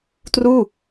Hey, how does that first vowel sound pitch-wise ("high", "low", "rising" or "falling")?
falling